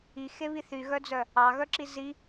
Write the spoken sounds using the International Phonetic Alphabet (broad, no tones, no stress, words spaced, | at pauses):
ixeβi θyɣœd͡zœ | ɑɣœǁi zi